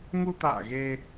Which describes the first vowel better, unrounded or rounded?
rounded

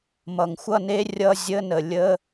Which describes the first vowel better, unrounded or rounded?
unrounded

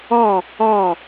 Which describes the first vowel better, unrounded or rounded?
rounded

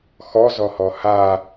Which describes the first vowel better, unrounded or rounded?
rounded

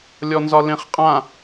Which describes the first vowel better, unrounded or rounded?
rounded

